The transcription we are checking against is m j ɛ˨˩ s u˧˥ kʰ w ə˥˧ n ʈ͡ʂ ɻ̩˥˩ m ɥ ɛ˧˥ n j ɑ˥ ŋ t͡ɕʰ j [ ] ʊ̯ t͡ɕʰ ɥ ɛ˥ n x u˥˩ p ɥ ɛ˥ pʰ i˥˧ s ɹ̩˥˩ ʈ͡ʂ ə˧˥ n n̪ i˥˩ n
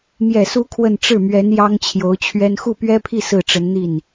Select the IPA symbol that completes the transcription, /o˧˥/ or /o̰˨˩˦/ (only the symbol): o˧˥